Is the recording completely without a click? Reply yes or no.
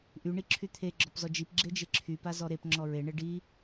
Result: no